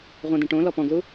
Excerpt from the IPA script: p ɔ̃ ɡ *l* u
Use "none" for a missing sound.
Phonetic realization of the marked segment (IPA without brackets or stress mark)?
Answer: l